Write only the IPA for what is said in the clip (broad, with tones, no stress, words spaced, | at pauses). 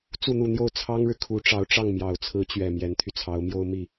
t͡su˥˧n̪u˥˧n̪jo˥˩ʊ̯ t͡sʰɑ˥ŋɻɻ̩˨ kʰu˧˥ʈ͡ʂɑ˧˥ʊ̯ʈ͡ʂɑ˥˩ŋ mjɑ˨˩ʊ̯t͡sʰɹ̩˧˥t͡ɕɥɛ˨˩ mjɛ˧˥nt̪ʰy˧t͡sʰɑ˧˥ʊ̯mjo˥ʊ̯ mi˥˩